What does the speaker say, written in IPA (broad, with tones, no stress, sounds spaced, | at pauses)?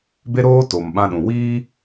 b e˦ ɾ oː˦ t o˨ m ɓ ã˦ ɗ ũ˨ w iː˦